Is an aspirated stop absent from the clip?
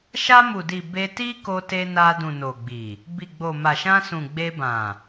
yes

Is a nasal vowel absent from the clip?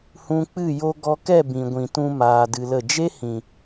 no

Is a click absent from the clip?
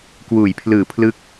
yes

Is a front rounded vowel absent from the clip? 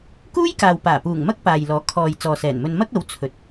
yes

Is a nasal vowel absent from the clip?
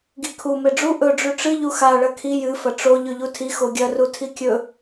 yes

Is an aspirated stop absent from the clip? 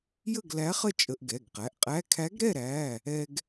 no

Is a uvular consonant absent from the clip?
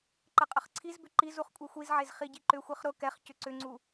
no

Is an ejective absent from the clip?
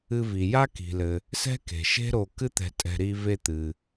no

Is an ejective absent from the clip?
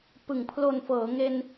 yes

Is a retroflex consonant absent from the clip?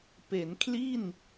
yes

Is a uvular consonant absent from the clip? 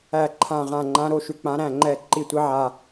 no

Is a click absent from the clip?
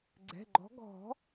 no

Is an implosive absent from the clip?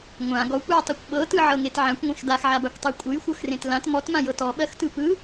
no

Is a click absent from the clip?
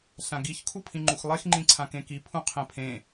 no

